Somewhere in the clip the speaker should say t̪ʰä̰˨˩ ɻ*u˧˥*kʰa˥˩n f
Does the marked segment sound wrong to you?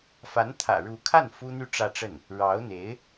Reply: no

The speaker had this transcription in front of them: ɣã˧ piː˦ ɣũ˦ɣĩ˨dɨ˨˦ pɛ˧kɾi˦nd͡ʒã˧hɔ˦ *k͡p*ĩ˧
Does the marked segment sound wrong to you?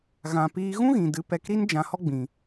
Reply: yes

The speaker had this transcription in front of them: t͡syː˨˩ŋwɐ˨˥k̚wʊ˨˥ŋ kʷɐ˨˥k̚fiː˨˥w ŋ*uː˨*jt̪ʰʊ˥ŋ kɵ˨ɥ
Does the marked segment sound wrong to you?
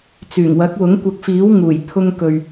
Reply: yes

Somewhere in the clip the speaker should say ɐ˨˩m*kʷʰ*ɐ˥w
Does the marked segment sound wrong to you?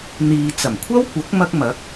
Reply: no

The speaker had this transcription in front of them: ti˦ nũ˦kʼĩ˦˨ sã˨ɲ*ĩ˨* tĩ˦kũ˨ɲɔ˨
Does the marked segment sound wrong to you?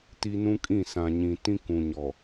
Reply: no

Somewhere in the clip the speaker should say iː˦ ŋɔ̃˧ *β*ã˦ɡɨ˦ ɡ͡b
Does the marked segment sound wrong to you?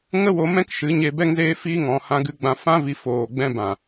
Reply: yes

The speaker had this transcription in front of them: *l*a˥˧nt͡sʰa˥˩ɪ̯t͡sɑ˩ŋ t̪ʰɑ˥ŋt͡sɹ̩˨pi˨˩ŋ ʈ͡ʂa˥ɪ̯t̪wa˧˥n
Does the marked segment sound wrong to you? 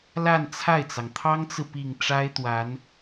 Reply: no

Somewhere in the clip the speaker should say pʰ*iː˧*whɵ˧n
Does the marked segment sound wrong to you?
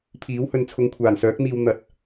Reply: yes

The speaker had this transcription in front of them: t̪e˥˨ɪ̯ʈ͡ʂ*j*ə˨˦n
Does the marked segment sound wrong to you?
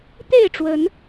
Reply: yes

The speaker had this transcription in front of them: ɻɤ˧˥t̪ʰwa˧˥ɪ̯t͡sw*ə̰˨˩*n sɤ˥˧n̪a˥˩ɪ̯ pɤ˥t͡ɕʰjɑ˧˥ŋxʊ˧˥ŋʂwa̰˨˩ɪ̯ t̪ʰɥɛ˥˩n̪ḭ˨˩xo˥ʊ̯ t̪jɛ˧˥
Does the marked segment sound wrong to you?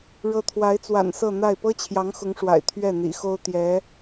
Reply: yes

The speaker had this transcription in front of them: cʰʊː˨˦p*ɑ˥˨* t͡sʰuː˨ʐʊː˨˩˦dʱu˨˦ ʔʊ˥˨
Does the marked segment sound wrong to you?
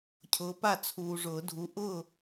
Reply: yes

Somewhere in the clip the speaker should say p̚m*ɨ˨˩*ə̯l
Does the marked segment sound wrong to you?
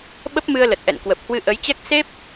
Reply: yes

